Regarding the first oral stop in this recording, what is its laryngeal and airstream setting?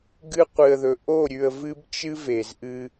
plain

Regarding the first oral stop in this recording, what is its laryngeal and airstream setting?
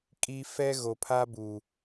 ejective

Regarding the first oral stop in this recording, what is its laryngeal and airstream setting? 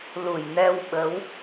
implosive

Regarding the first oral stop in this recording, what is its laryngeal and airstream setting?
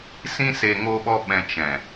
implosive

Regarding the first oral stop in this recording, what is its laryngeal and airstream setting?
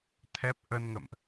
aspirated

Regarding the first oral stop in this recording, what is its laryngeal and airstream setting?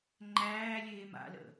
click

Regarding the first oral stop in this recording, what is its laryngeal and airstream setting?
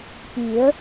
plain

